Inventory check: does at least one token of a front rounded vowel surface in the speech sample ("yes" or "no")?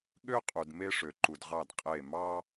yes